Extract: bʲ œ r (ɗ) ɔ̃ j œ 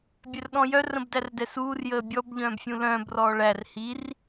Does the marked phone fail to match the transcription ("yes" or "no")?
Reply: no